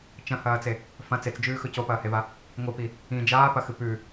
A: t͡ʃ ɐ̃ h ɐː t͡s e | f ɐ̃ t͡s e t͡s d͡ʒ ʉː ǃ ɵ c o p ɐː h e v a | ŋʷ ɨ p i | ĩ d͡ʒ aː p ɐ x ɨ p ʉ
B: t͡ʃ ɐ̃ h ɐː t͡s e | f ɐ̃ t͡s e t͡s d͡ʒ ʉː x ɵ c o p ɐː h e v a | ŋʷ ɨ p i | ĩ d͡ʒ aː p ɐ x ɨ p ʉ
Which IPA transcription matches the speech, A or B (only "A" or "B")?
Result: B